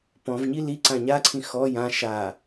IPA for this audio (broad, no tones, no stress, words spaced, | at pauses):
pɔ̃v ɲili ǀãɲaǀʰĩ xɔ jã ʃa